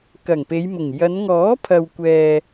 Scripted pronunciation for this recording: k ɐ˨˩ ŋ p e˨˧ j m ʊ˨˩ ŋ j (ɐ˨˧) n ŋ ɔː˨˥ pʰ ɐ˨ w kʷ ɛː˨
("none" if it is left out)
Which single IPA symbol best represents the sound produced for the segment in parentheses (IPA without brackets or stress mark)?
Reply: ɐ˨˧